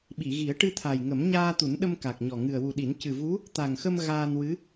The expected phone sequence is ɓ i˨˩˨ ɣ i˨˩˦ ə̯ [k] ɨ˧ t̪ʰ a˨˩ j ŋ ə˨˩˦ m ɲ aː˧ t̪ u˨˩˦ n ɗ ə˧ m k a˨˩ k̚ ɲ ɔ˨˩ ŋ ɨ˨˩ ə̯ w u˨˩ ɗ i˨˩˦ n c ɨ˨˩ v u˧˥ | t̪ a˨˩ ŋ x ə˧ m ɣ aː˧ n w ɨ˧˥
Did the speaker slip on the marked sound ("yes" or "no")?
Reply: yes